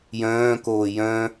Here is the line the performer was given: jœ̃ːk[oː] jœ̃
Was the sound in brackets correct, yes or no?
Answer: yes